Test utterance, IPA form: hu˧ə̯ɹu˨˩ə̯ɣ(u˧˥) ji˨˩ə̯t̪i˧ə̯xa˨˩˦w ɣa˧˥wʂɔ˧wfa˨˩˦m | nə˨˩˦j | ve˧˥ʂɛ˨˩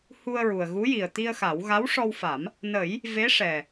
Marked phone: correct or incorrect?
correct